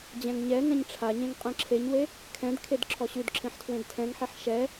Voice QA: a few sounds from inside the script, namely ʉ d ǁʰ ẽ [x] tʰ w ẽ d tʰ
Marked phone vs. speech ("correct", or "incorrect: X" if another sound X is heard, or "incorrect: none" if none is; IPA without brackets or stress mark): incorrect: ħ